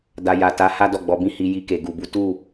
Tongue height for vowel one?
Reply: low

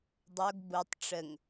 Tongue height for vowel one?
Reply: mid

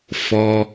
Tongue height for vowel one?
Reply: mid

